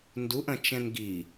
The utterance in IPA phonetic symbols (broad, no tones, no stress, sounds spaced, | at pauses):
n d u ʔ ɐ̃ t͡ʃ ɛ̃ n ɡ i